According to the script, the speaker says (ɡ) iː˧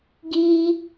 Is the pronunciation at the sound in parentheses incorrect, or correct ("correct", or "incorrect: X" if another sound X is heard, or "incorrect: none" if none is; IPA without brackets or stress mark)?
correct